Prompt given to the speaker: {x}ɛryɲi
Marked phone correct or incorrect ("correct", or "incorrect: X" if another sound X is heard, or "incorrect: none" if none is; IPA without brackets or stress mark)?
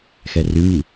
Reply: correct